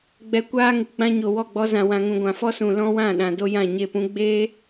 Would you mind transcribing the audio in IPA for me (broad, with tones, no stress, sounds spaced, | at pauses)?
ɡ͡b ɛ˧ kʷ aː˦ ŋ ɨ˨ ɡ͡b ã˧ ɲ o˨ w ɔ˦˨ ɡ͡b ɔ˧ z ã˨ w ã˨ ŋ ũ˨ ɡʷ ã˨ f ɔ˦ s ũ˨ l ɔ̃˦ w ã˦˨ ɗ ã˨ d o˦ j ã˦˨ ɲ e˦˨ p ũ˦ ɡ͡b eː˦